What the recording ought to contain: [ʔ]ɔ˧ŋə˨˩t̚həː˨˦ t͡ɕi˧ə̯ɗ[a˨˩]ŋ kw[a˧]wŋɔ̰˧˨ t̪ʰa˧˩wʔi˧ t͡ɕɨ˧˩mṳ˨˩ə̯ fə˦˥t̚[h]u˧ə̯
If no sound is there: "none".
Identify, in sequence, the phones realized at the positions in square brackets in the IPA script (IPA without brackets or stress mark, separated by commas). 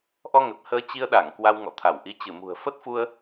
ʔ, a˧˩, a˧, f